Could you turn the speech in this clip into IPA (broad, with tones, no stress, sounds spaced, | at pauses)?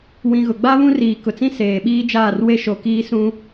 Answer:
w ĩ˨ ɣ ʊ˨ ɡ͡b a˦ β ũ˦ r iː˨ k ʊ˨ t͡s ĩ˦ s eː˨ ɓ iː˦ d͡ʒ aː˦˨ r w e˦ ʃ o˨ k iː˦ s ũ˦